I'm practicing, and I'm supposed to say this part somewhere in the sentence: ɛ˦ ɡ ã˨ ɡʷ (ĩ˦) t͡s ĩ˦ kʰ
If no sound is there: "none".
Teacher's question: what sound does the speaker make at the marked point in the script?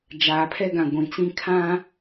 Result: ĩ˨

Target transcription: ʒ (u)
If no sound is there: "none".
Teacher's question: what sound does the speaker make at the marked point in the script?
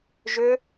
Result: ʏ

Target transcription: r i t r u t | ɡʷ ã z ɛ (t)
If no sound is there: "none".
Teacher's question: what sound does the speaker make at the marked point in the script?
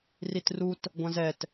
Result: t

